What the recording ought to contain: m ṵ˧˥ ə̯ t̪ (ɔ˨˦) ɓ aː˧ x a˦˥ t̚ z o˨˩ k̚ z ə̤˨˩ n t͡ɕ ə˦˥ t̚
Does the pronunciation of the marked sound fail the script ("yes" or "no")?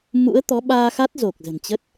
no